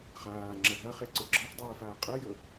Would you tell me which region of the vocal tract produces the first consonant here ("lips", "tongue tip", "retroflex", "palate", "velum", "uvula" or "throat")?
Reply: uvula